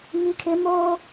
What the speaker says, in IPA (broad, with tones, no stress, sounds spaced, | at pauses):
ŋ i˦ kʰ ɪ˦ m oː˦